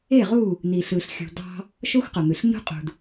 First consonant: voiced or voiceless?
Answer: voiced